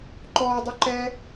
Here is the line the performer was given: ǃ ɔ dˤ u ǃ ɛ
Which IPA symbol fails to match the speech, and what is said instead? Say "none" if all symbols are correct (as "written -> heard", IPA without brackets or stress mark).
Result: none